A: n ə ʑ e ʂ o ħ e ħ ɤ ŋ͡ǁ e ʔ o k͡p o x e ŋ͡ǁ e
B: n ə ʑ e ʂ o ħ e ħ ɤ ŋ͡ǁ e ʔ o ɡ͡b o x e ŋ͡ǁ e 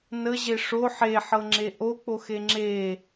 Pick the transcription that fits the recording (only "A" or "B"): A